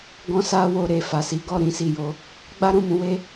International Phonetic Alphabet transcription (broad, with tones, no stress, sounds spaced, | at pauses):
ɡ ɔ̃˧ s a˧ w o˨ ɾ e˨ f a˨ s i˨˦ ɡ ɔ˦˨ ɾ ĩ˧ s i˨ j o˨˦ | ɡ͡b a˦ ɾ ũ˦˨ m ũ˨˦ w e˦